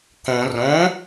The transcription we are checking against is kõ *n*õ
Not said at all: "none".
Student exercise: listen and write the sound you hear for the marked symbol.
r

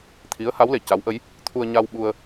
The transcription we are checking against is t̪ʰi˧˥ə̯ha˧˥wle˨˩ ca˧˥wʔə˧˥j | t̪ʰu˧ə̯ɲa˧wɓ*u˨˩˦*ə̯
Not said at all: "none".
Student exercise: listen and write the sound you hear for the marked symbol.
u˧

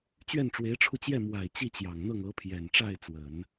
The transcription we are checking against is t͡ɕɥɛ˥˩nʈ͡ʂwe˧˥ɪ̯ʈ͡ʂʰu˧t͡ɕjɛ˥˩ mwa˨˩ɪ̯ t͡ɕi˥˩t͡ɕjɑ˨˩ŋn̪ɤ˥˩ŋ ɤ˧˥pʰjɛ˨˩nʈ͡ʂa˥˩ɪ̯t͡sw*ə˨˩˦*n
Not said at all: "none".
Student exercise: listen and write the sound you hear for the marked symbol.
ə˨˩˦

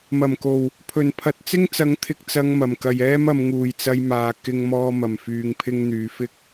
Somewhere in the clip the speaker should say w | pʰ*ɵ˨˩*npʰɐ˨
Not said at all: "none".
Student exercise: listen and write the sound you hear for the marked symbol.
ɵ˨˩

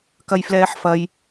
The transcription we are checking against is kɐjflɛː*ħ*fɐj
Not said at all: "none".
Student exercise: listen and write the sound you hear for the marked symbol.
ħ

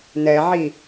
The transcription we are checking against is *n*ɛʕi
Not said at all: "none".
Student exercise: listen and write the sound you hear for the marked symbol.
n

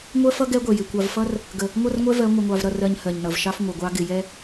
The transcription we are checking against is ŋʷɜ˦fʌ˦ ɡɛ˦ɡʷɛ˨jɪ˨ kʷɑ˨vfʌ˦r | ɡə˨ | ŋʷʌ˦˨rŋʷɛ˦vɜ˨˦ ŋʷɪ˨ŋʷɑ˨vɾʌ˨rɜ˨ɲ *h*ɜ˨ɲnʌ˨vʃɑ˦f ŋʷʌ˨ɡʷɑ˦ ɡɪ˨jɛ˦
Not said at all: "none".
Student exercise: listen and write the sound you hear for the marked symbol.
h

